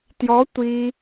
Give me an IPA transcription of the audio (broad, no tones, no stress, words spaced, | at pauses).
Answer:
tjɔ tʷi